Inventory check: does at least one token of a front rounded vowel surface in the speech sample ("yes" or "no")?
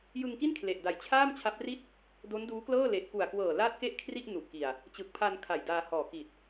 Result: no